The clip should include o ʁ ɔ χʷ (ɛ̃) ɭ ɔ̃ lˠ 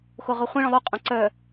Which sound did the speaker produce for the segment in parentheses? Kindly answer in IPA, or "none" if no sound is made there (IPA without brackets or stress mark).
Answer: ɛ̃